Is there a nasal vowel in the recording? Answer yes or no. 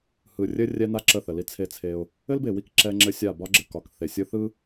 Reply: no